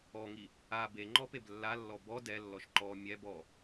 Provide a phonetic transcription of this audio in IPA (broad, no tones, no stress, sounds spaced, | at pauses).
ɔ ŋ i | a b e ŋ͡ǃ ɔ p e b lː a lː ɔ b ɔ d ɛ lː ɔ ʃ ǃ ɔ mʲ ɛ b ɔ